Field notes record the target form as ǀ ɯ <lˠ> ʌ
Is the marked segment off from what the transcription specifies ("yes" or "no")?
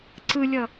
yes